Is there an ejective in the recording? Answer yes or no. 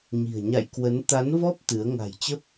no